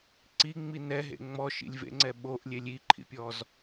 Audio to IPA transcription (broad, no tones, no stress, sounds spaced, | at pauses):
ǀ i ŋ͡m i n ɛ ɦ ḛ ŋ͡m ɔ ʃ ḭ lʲ v ḛ ŋ͡ǀ ɛ ɓ o ʔ lʲ e lʲ i ǃʰ ḭ pʲ ɔ z